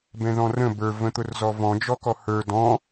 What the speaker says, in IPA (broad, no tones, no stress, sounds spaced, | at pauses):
b ɛ̃ ð ɔ̃ r ə̃ b ə˞ v ə̃ t̪ ʊ r z ɔ v ɔ̃ d͡ʒ ɔ k ɔ h ə˞ d ɔ̃